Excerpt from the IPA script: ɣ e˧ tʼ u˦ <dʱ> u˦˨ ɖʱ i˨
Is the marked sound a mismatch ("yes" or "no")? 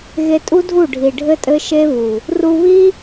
no